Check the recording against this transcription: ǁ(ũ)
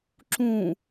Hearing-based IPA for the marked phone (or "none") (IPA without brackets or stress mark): ũ